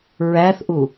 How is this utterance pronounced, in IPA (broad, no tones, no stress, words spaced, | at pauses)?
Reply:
ɹæθʔu